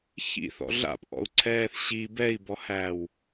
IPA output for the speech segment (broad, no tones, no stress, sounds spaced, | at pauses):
ç ḭ θ ɔ̰ ɮ a̰ p ʔ ɔ̰ u̯ ǀʰ ɛː θ ɕ i b ɛ i̯ b ɔ h æː w